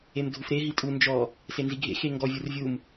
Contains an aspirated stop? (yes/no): no